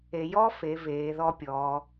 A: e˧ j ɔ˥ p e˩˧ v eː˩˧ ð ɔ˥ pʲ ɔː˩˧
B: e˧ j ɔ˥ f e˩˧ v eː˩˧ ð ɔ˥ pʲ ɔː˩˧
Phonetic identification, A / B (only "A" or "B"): B